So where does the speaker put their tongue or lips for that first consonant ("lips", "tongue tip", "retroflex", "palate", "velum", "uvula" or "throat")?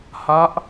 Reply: throat